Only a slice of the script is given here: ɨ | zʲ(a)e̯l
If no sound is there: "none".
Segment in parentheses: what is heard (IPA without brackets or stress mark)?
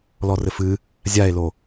a